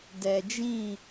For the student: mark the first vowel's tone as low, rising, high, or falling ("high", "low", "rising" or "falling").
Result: low